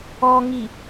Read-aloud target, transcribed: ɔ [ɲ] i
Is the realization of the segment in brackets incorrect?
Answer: yes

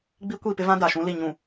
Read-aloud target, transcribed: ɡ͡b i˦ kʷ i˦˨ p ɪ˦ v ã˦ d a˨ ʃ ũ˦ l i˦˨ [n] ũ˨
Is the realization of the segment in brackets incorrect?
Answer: yes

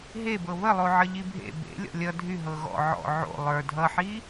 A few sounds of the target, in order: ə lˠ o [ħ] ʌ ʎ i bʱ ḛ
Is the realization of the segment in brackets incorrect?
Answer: yes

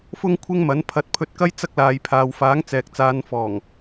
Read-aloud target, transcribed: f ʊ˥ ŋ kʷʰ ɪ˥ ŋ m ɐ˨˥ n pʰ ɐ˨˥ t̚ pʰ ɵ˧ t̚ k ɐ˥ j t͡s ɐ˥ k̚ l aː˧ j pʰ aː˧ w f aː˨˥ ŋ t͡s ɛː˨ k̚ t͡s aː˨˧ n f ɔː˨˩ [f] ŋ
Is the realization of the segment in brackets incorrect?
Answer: yes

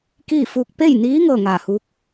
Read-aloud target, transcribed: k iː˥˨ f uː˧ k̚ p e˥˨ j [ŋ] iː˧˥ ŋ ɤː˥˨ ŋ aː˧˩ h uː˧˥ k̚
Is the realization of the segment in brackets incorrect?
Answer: yes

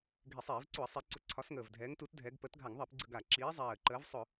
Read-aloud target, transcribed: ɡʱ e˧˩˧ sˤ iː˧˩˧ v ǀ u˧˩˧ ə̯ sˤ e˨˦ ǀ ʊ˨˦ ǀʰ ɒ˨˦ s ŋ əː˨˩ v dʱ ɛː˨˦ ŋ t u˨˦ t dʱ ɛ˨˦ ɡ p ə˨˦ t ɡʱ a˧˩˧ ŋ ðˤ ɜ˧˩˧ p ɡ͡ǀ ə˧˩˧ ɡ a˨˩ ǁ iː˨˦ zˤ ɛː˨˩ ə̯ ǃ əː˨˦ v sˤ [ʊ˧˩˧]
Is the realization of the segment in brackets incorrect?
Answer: no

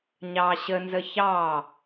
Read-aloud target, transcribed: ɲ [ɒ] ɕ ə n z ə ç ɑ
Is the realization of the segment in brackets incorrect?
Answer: yes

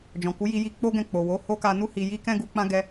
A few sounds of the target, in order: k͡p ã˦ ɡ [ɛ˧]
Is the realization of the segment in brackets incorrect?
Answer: no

